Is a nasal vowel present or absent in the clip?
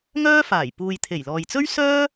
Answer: absent